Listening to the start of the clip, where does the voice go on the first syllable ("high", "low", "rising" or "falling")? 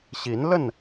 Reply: rising